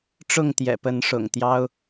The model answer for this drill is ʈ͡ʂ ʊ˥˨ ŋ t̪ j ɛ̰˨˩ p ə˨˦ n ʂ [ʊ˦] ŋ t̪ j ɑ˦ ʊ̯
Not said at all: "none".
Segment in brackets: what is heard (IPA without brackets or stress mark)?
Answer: ʊ̰˨˩